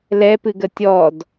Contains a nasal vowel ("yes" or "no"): no